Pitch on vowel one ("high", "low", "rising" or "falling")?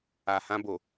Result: low